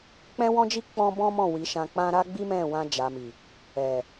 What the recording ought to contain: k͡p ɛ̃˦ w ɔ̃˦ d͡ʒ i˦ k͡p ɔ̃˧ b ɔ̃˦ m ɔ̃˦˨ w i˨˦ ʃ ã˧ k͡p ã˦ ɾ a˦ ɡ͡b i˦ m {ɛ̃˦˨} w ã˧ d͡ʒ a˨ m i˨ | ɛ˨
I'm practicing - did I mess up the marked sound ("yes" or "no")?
no